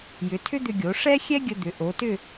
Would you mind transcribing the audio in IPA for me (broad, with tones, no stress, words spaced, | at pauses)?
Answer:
jʏ˩˧ tʰʏ˥d̪ʏ˧ɡʲo˩˧ ʂɛ˥ xʲɛ˥ɡʲə˧d̪ʏ˩˧ ʔo˩˧tʏ˥˧